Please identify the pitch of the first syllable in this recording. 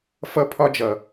high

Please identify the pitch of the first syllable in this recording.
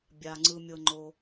low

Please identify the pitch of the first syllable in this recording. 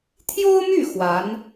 high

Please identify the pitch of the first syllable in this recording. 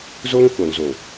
high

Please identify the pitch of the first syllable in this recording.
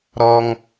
high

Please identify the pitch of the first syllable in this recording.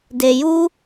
low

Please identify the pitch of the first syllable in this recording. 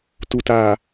low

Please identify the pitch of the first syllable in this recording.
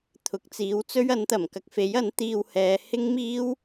rising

